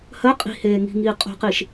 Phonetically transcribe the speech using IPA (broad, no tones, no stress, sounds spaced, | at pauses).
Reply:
h ɜ qʼ i̤ h eː ŋ i̤ ŋ iː qʼ o̤ q i ʃ